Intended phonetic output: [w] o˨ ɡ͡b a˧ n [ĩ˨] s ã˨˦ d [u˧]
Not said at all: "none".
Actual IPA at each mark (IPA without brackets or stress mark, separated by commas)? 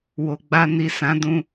w, i˨, ũ˧